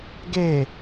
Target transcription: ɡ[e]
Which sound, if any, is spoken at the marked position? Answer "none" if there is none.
e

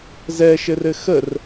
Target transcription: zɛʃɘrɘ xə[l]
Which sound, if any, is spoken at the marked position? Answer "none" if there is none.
r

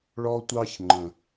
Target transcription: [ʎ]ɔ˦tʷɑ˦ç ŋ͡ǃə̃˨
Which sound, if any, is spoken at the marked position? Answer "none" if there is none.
ɭ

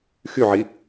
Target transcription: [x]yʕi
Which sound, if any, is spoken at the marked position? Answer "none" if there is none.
x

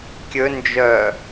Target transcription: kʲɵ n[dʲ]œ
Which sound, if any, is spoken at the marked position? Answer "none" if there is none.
d͡ʒ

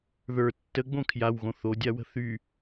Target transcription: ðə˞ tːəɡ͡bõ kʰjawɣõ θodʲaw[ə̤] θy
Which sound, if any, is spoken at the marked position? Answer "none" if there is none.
ə̤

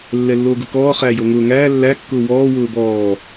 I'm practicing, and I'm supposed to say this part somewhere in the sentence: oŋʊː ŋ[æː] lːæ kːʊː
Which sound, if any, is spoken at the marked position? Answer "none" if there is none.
æː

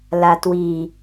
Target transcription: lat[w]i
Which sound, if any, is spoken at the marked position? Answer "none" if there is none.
w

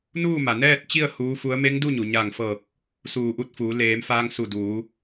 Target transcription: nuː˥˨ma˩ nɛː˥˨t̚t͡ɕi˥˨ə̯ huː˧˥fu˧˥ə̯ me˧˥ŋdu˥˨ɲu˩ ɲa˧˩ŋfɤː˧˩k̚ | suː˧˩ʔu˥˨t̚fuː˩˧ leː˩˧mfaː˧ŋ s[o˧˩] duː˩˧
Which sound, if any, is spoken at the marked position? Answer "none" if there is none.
u˧˩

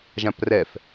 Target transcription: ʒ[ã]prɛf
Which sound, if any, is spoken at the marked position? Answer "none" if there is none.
ã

